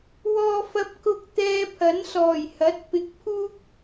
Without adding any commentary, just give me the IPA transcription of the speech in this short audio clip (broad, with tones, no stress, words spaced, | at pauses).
wɔː˧fɐ˧p̚ kʊ˧k̚ t̪ɛː˧pʰɐ˨˥nsɔː˨˩jhɐ˨˥t̚ pɪ˨k̚ pʰuː˥k̚